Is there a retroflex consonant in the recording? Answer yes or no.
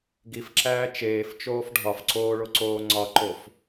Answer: yes